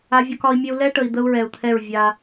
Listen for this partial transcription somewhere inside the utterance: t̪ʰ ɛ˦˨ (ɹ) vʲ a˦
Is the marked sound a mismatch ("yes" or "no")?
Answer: no